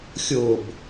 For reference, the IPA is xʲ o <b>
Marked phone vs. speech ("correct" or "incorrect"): correct